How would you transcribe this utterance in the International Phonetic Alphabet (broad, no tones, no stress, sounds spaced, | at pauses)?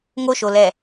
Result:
ŋ o ʃ o l ɛ